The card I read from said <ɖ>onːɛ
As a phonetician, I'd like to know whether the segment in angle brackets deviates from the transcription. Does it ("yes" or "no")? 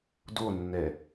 yes